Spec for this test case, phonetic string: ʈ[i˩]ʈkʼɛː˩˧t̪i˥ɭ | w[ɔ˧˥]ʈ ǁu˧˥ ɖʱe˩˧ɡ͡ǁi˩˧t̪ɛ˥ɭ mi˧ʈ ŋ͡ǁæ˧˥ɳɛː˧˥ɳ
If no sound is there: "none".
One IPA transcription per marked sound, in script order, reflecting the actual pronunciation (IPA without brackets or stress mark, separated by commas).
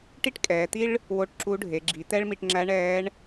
i˥, o˧˥